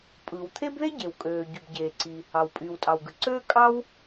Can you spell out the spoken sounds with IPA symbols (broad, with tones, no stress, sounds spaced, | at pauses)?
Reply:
pʼ ɯ˩ w t̪ʰ e˥ b ð e˥ ɟ e˩ w kʼ øː˩ ɟ y˩ b ɟ eː˩ ǀ i˩ | ɑ˩ w pʼ yː˩ w tʼ ɑ˩ w ɡ ɯ˩ ǀ øː˥ kʼ ɑ˥ w